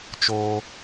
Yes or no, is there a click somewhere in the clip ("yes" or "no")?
no